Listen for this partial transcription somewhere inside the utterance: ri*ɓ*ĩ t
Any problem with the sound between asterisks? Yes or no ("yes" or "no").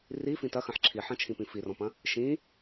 yes